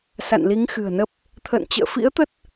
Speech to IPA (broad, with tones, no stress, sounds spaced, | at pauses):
s a̰˧˨ n l i˨˦ ŋ x ɨ̤˨˩ ə̯ n ə˦˥ p̚ | t̪ʰ ə̰ː˧˨ n t͡ɕ ə̰ː˧˨ f ḭ˧˥ ə̯ t̪ ə˦˥ t̚